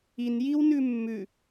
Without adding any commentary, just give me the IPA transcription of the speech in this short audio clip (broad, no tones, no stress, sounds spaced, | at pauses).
i n j i w n ʉ mː ʉ